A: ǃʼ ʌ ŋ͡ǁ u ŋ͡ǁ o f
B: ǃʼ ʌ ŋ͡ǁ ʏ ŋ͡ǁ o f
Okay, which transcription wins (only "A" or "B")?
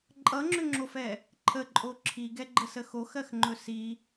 B